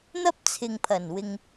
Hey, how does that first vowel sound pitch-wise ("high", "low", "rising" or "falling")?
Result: high